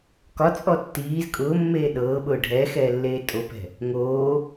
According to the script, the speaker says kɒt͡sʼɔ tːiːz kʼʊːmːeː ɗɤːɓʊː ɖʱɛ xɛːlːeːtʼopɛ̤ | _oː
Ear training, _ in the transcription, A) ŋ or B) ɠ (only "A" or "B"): A